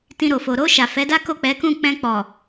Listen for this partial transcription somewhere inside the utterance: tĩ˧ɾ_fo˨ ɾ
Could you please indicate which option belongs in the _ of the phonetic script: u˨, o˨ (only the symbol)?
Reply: o˨